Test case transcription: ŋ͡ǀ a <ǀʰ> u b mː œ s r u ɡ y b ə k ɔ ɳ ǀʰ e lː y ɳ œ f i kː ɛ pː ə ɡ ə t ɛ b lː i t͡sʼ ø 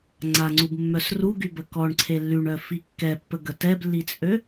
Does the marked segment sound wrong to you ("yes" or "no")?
yes